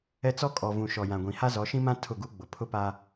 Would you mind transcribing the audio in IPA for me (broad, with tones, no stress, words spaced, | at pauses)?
ɛ˦ t͡sɔ˦kʼɔ˨ vũ˨ʃɔ˨jã˨ɡʷĩ˨ ha˦zɔ˨˦ʃĩ˦mã˦ tʰʊ˦˨ɡu˦ɡ͡bʊ˨ pʰʊ˦pa˦